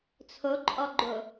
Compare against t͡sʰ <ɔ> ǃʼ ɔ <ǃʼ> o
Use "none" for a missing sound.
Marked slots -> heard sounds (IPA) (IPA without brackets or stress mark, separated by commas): o, ɡ͡ǃ